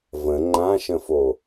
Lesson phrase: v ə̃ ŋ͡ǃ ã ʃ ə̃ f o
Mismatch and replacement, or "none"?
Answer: none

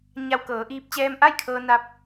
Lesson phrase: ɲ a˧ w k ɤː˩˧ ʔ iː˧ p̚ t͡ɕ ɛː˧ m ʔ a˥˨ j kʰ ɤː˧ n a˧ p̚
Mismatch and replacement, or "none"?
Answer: none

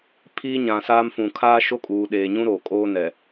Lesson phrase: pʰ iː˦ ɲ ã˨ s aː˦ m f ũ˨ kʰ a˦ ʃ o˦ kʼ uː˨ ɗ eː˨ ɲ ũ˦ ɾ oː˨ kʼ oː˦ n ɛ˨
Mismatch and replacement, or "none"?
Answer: a˦ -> aː˦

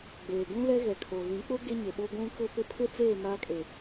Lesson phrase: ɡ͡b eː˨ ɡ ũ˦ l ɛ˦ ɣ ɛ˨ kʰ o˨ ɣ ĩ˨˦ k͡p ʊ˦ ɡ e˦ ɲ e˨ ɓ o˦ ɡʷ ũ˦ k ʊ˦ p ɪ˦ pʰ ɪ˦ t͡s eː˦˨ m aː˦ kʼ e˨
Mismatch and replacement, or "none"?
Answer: none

